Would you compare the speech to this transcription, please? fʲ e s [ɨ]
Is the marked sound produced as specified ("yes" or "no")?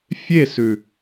no